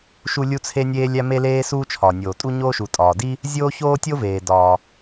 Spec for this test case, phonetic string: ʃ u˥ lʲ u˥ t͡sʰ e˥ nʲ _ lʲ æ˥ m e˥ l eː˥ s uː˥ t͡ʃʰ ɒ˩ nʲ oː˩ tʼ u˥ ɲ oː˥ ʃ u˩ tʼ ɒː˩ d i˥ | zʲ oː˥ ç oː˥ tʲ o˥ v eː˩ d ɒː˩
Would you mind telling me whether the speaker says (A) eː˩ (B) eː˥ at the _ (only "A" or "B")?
B